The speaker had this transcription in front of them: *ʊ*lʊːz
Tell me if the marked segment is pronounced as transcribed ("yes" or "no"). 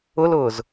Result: yes